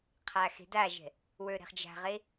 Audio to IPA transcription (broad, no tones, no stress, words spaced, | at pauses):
qʰaxe̤daʒɛ̤ | wə˞ɾɛ̤χd͡ʒa̤ʁe